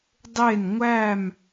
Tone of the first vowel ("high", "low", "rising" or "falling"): falling